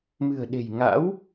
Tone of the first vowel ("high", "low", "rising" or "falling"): low